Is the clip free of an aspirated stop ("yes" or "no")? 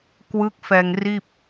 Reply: yes